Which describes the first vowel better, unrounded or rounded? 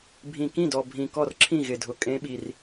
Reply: unrounded